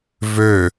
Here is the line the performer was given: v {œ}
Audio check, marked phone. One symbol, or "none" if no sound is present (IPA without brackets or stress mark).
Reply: ø